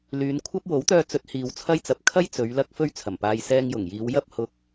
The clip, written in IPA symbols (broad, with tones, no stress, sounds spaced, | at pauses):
l yː˨˧ n kʷʰ ɐ˥ p̚ w o˨˥ w t̪ œː˧ t͡s ɵ˨˥ t̚ h iː˨ w t͡sʰ ɐ˥ j t͡s ɐ˨ p̚ kʰ ɐ˥ j t͡s ɵ˨˧ ɥ l ɐ˥ k̚ f ɵ˥ ɥ t͡sʰ ɐ˨˩ m p aː˧ j s ɛː˧ ŋ j ʊ˨˩ ŋ j iː˨˧ w j ɐ˥ p̚ h ʊ˥ k̚